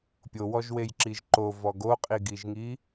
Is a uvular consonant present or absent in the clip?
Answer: present